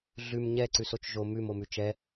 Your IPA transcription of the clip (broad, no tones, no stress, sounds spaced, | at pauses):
ɮ ʉ m ɲ ɛ ǀ ʉ s o t͡ʃ ʒ o m ʉ m o m ʉ t͡ʃ ɛ